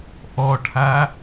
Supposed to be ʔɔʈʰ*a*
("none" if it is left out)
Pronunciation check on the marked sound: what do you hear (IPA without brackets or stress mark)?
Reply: a